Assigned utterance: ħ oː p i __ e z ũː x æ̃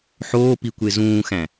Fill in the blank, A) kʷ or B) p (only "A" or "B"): A